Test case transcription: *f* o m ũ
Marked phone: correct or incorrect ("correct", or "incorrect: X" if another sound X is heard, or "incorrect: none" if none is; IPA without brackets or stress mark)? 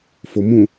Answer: correct